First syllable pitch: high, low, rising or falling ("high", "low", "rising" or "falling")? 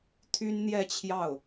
high